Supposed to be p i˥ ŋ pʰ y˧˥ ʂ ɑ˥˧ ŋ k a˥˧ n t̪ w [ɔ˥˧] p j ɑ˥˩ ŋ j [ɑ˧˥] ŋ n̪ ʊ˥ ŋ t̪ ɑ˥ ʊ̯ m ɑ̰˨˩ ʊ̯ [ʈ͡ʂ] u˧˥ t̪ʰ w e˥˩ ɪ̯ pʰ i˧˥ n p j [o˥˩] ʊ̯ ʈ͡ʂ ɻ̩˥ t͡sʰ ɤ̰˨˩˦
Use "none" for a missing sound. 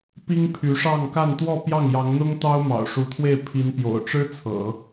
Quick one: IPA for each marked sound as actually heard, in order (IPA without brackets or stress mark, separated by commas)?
ɔ˥˧, ɑ˧˥, ʂ, o̰˨˩